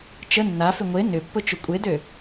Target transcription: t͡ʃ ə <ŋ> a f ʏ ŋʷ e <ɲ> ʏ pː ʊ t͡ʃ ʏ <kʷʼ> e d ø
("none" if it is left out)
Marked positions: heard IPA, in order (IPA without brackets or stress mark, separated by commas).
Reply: nː, n, kʷʼ